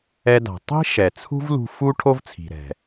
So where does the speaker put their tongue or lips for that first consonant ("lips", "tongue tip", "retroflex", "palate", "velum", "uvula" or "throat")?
tongue tip